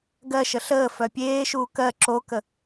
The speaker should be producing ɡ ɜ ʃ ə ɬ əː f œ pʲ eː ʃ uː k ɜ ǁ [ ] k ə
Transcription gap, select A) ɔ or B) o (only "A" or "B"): B